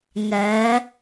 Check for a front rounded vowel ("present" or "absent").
absent